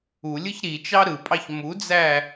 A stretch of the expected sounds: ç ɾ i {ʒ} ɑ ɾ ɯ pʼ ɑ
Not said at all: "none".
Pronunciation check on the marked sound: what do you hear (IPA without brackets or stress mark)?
t͡ʃ